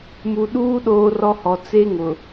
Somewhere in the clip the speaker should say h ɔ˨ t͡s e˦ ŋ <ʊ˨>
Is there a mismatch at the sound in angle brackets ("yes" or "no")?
no